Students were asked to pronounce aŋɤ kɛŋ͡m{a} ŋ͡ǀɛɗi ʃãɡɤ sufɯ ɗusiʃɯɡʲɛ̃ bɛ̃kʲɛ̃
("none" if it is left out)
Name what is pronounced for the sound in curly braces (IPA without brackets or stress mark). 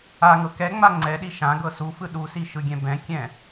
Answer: a